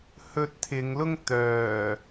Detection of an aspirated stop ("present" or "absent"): present